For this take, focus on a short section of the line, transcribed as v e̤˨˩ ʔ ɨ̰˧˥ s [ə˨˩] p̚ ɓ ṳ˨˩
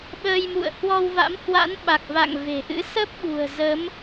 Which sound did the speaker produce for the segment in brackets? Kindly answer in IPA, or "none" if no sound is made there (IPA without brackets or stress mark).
ə˦˥